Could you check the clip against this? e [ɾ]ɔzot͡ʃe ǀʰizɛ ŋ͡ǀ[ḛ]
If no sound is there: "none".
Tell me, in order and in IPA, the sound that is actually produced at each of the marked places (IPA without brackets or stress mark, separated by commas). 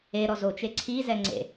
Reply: ɾ, ḛ